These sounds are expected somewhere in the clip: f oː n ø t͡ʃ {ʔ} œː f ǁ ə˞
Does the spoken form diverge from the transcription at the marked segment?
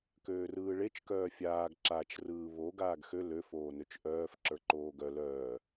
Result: no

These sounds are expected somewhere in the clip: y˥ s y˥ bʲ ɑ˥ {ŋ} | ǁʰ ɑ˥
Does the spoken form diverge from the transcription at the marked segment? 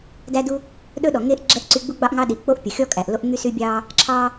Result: yes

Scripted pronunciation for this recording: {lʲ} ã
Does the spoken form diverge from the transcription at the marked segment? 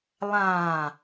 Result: yes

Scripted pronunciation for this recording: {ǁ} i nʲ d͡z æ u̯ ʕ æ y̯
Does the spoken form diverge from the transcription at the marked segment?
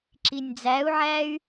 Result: no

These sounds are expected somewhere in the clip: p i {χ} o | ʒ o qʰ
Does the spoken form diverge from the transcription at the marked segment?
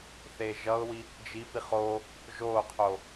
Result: no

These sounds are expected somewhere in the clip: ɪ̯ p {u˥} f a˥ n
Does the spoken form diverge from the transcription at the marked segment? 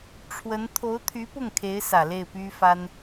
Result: yes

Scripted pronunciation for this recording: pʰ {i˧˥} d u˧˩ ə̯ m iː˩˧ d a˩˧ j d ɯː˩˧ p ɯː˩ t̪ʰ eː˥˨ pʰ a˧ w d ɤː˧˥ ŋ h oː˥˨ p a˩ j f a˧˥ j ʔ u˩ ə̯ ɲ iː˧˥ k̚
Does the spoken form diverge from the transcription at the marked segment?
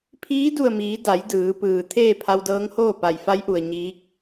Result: yes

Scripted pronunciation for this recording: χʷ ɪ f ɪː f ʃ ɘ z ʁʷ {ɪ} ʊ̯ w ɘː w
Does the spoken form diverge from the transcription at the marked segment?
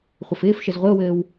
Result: no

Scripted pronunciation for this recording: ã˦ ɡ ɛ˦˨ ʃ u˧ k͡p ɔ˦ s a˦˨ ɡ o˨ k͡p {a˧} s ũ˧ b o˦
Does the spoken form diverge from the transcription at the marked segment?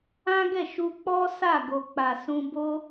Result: yes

